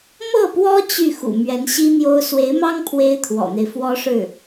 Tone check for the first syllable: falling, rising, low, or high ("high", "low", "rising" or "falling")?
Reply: falling